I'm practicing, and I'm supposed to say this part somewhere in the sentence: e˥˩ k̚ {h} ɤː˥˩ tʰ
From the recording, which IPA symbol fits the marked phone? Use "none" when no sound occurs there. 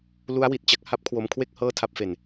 h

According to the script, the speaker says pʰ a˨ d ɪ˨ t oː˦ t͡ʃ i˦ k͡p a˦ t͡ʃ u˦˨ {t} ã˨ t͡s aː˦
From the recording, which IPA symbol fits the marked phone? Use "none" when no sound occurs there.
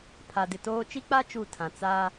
tʰ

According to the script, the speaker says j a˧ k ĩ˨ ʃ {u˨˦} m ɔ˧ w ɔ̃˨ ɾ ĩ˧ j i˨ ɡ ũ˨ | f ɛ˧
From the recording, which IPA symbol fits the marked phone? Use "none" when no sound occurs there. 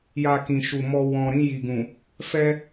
u˨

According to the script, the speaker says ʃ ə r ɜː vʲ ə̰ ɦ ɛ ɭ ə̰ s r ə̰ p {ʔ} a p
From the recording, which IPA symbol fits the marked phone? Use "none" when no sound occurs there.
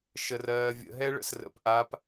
ʔ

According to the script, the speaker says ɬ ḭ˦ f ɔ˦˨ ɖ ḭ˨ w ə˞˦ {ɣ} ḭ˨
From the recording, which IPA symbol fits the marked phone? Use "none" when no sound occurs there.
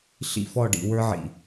ʕ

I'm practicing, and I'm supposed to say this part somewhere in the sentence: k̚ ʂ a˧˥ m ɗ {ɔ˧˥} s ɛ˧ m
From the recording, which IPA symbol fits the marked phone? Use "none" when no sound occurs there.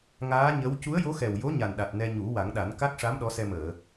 ɔ˧˥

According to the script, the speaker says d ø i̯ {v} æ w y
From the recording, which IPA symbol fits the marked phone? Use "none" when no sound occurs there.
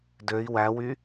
w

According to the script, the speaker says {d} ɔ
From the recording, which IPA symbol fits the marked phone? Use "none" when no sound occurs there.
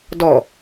d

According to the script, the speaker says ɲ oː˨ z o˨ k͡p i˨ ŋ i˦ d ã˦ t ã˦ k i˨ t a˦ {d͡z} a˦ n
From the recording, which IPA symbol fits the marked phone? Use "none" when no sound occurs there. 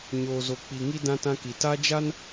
d͡ʒ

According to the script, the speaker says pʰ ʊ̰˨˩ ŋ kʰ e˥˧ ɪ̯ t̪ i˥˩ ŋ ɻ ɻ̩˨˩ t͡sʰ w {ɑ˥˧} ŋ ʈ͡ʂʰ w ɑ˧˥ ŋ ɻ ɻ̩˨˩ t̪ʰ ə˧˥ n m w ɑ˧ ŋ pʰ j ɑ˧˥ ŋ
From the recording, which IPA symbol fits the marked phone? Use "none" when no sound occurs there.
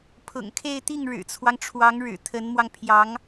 ɑ˦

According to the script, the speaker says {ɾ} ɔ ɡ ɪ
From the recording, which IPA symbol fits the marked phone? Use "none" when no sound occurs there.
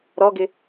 ɾ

